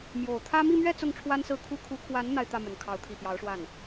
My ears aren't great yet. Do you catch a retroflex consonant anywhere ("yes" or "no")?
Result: yes